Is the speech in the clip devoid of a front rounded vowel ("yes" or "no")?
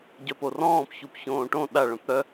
no